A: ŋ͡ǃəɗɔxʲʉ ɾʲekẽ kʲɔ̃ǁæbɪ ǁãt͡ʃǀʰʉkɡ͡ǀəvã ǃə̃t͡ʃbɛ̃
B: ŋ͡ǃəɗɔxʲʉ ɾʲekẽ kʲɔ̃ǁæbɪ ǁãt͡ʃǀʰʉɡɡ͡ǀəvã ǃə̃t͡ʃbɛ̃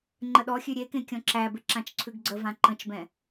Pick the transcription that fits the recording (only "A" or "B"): B